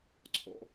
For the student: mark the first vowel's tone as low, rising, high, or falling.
low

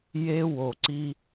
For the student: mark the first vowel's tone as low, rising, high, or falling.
high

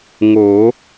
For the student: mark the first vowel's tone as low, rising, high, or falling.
rising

